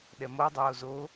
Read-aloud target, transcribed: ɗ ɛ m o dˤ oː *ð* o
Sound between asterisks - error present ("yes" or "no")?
yes